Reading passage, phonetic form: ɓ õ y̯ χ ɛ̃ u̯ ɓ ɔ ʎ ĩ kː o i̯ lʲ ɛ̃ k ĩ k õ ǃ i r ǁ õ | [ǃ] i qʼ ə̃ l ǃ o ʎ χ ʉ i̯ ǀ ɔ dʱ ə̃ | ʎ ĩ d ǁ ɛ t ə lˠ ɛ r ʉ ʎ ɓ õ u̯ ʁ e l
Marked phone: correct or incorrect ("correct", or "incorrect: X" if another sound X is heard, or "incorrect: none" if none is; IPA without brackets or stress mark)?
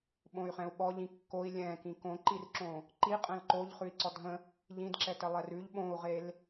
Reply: correct